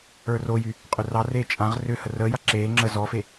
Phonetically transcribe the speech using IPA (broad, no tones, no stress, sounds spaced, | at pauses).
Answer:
ə˞ r o j y | qʼ ʏ r ɑ r eː t͡ʃʼ ã ʁ r ʏ h ə r əː j a ǁ eː ŋ͡ǁ ə z ɔ f e